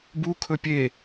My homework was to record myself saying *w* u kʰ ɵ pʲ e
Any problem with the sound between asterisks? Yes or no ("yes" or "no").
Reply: yes